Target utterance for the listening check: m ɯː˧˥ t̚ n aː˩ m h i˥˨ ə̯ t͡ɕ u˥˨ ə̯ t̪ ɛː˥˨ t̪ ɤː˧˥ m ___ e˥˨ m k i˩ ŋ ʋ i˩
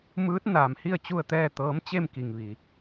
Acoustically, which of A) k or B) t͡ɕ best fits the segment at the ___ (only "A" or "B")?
B